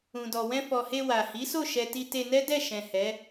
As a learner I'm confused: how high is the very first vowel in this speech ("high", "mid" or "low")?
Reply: high